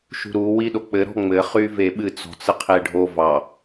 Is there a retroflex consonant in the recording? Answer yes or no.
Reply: yes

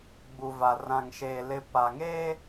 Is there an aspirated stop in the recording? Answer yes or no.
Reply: no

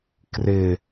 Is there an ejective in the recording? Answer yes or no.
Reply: no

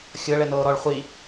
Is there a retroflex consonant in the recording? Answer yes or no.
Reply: yes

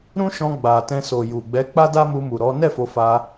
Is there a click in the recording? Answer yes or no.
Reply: no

